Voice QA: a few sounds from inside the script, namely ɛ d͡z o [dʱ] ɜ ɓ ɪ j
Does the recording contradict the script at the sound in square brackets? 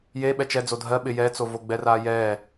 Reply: no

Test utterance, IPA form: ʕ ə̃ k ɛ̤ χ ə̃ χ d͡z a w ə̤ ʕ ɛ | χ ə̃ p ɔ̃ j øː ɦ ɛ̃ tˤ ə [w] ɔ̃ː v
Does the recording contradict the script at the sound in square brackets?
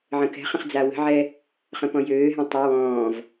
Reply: no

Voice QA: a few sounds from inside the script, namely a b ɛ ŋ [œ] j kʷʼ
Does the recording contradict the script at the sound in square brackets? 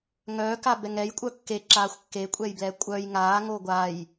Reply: yes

